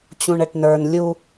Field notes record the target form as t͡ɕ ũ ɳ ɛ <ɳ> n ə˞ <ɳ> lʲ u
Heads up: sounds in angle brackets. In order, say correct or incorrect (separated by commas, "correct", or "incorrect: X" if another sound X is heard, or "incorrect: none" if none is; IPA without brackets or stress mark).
incorrect: ʈ, incorrect: n